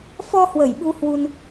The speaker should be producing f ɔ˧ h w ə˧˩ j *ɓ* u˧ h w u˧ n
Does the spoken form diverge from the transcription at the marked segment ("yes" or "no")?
no